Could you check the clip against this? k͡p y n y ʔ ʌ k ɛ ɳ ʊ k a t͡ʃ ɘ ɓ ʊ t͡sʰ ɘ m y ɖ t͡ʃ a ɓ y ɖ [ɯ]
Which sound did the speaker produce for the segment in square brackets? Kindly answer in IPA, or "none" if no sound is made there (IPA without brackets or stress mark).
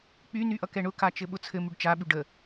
ə